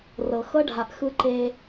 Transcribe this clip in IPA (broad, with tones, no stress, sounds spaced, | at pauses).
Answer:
r ɤ˨ x ɤ˦ ɖʱ a˨ ʔ x ɯ˦ ǃ e˦